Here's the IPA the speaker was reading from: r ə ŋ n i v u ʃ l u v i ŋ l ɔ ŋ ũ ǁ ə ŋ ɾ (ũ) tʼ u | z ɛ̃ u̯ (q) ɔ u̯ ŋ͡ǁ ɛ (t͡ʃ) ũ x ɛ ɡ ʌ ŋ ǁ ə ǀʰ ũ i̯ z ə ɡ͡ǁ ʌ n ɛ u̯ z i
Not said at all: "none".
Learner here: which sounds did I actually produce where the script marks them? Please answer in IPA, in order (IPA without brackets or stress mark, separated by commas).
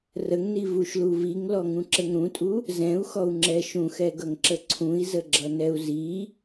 ũ, x, ʃ